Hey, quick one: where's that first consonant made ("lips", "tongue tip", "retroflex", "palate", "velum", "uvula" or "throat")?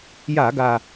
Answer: palate